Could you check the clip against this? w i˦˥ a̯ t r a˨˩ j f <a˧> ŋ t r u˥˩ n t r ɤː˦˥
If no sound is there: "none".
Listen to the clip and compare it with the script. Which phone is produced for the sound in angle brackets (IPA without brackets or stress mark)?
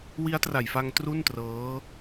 a˧